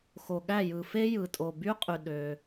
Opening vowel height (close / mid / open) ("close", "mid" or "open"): mid